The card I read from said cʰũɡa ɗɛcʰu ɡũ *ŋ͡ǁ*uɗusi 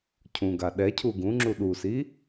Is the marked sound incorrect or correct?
correct